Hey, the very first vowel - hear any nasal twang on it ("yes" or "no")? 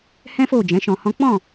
yes